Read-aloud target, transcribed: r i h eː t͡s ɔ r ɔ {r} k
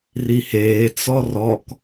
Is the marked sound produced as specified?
no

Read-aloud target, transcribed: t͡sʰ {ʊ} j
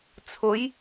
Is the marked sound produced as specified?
yes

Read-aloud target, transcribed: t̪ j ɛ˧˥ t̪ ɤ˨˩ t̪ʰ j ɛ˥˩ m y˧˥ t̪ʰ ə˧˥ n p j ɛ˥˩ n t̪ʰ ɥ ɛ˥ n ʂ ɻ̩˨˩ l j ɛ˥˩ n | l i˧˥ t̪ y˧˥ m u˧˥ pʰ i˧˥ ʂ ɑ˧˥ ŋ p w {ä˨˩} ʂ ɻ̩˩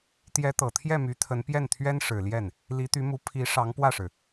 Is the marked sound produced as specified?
no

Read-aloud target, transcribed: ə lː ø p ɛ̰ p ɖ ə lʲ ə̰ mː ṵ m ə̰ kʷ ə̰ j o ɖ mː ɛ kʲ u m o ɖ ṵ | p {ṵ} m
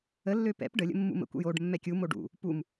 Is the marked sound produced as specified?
no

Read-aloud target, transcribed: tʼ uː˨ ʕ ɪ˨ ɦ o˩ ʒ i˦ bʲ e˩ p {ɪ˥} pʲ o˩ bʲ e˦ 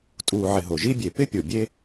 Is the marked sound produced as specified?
no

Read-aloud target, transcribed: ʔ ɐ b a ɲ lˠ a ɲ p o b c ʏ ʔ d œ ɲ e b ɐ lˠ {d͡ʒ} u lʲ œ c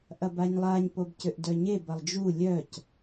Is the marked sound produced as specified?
yes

